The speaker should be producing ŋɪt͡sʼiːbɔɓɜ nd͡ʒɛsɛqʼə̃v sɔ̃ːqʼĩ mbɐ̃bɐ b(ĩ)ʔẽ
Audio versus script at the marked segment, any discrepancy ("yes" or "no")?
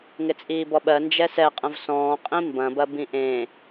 no